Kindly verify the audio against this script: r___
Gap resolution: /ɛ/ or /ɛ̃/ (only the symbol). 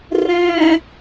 ɛ̃